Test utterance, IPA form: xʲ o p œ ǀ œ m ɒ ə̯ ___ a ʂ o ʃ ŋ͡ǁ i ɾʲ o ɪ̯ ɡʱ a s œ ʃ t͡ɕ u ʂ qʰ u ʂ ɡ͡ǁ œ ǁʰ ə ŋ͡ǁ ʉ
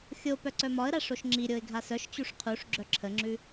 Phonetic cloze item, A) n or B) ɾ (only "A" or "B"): B